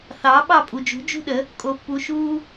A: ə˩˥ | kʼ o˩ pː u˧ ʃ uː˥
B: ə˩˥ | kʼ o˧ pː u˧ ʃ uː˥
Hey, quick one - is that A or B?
B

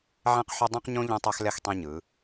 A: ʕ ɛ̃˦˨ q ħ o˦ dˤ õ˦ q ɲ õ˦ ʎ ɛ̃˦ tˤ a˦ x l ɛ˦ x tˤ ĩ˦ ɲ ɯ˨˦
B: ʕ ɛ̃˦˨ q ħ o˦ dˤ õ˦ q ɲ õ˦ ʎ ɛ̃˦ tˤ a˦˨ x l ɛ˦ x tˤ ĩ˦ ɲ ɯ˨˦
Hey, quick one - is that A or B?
A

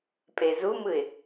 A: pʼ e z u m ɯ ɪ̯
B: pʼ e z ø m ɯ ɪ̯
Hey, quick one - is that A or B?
A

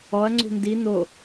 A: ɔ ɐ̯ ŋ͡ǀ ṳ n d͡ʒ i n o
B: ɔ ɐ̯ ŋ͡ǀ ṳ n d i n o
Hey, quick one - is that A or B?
B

